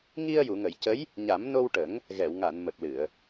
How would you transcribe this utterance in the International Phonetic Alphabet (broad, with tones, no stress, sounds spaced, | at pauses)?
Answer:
ŋ i˧ ə̯ j u˨˩˨ ŋ ə˨˩˨ j c ə˧˥ j | ɲ a˨˩˦ m n o˧ w ʈ ə˨˩˦ ŋ | ɣ ɛ˨˩˨ w ŋ a˨˩˨ n m ə˨˩ k̚ l ɨ˨˩˨ ə̯